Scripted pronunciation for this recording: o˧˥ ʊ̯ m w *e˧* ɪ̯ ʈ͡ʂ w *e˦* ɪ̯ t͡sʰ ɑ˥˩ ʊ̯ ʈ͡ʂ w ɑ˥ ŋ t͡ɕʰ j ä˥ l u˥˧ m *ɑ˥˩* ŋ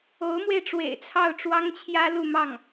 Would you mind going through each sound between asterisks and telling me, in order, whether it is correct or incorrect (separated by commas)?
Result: correct, incorrect, correct